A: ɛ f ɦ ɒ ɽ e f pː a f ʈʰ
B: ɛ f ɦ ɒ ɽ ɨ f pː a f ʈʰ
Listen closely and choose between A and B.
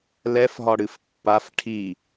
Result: B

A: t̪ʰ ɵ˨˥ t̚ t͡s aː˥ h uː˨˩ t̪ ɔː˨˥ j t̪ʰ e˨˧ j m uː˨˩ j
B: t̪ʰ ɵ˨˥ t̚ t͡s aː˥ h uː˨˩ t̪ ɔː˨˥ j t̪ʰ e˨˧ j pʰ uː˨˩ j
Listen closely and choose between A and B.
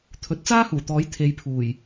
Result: B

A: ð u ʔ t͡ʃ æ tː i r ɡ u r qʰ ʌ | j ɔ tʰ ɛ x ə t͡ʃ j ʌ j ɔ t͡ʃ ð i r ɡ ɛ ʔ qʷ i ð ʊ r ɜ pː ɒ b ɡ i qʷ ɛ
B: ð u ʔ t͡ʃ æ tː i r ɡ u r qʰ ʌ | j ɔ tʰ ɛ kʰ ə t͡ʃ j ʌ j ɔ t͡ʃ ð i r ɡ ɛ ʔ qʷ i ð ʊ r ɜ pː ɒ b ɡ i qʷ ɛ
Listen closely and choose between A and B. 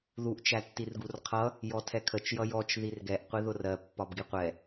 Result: B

